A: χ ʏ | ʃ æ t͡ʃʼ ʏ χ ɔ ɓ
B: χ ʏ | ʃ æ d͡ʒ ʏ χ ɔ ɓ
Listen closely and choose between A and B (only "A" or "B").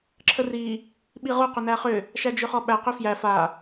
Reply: B